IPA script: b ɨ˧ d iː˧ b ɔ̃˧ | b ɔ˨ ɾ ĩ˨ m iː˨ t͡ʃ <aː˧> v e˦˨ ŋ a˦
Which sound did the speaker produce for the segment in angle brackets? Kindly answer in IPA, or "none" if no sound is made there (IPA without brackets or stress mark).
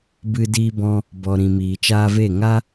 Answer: aː˧